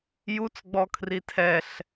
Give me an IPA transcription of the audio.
j u t͡s ɡ͡b ɔ kʰ r i tʰ ɛ ɬ

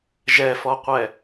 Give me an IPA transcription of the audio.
ʒ ɛ f ɔ qʷ ɛ

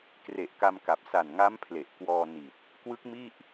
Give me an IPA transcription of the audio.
k r e˨˩ ʔ k a˧ m k a˨˩ p̚ s a˨˩ n ŋ a˦˥ m pʰ l e˨˩ ʔ k w ɔː˧ n i˨˩ t̚ | k w ɯ˦˥ k̚ m i˥˩ ʔ

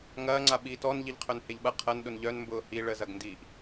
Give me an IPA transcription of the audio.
ŋ ɐː ŋ͡ǀ a ɓ iː t ɔ n ʎ i ʎ qʰ œ n h e ʎ ɓ ɐ qʰ ɐ n ɗ ʊ n ʎ œ n m b ʊː h i ɭ ə z ɐ ɡ n d iː ʔ

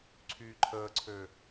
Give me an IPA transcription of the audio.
ǀʰ yː ǃʰ əː ǀʰ ø

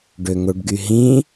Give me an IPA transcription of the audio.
ɖ ø ŋ o ɖ ɡ y ɦ ĩ

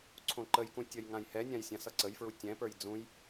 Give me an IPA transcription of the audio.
ǀʰ õ ǃ ə j k ũ tʲ ʌ j ŋ ã j h ɛ nʲ ã j sʲ ã s ʌ ǀ ə j f ɹ u tʲ ɛ̃ p ə˞ j d͡z ũ j

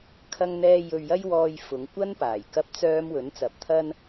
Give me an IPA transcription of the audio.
kʰ ɐ˥ ŋ n̪ ɛː˥ j ɵ˧ ɥ j ɐ˥ j w ɔː˧ j f ʊ˨˧ ŋ kʷ ɐ˥ n p aː˨˩ j k ɐ˥ p̚ t͡s œː˥ m w ɵ˨˥ n t͡s ɐ˨˥ p̚ t̪ʰ ɐ˥ n

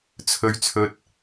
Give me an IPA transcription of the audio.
t͡sʰ ɵ˧ ɥ t͡sʰ ɵ˧ t̚

